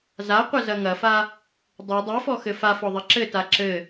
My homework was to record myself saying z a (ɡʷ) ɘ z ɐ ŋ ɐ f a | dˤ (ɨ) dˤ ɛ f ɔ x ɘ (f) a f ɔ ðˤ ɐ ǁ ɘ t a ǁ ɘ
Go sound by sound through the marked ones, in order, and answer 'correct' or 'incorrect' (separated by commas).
incorrect, correct, correct